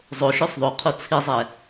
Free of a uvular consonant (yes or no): no